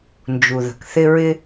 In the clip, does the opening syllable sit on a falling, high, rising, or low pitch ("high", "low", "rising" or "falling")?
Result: low